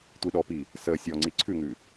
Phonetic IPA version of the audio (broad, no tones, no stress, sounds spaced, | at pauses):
tʷ i ɗ ɔ p i | s ə sʲ ɔ ŋ͡ǀ i ǀʰ ʉ ŋ ʉ